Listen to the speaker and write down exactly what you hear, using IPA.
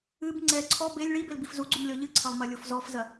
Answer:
ɨ b ŋ͡ǀ ɛ ǀʰ ɔ b e lʲ ɭ i b e l b i f z u ɡ͡ǀ u m lʲ ɔ ʎ ɨ ǀʰ ɐ lˠ m ɐ lʲ o f z ɔ f z ɐ

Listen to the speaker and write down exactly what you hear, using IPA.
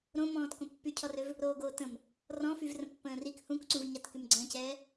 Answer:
ɾ õ m ɔ̃ː t k õ pː y cʰ ɔ r ø v | ɾ oː ɡ oː t ə̃ m | r ɔ̃ f y v r ə̃ pː ə̃ː r i k h ũ k ǀ ũ v ɲ a t k y m ɡ͡ǀ ə̃ː c ɛː

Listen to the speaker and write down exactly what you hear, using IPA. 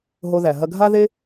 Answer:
ɦ o˧ ð æ˩ ɦ ɐ˧ ɡʱ a˥ ð e˥

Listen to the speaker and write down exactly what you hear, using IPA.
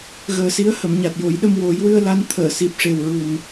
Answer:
ɣ əː˨˩ s i˧˥ ə̯ h ə˨˩˨ m ɲ a˨˩ t̚ j o˨˩˦ j ɗ ə˧ m w o˨˩˦ j w ɨ˧ ə̯ l a˧ n t̪ʰ əː˨˩˨ s i˨˩ p̚ ʂ e˨˩ w ɹ u˨˩ n

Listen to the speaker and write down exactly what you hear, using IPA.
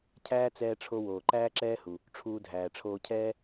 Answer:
cʰ æː˥ t͡s ɛː˧ ʈ͡ʂʰ o˧ w oː˩ ǃ æː˥ ǁ ɛː˥ h u˩ | ʈ͡ʂʰ uː˧ dʱ æː˩ ʈ͡ʂʰ oː˧ cʰ ɛː˥

